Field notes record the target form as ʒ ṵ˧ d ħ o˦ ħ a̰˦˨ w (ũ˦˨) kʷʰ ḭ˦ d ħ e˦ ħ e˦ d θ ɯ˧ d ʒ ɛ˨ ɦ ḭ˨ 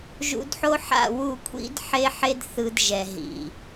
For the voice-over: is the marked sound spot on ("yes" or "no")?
no